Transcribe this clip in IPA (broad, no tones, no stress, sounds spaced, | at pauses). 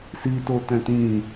s i t o t ɛ̃ t ĩ